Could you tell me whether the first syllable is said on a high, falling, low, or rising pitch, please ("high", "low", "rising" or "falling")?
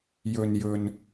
low